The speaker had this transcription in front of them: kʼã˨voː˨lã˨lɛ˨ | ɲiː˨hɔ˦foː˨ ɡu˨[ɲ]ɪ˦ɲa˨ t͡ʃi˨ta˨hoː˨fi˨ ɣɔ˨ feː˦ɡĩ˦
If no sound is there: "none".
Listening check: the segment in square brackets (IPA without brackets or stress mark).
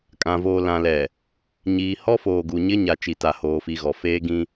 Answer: ɲ